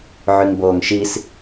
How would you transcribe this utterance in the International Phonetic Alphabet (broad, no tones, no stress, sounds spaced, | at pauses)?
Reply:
ʕ y ŋ b oː ŋ ʃ i s